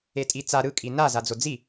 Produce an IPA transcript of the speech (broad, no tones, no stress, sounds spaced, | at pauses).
e tʼ i t͡s a ɾ ɯ kʼ i n a z a d͡z o d͡z i